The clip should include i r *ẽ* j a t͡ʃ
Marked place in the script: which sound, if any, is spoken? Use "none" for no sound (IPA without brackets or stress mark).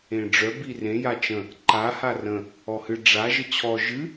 ẽ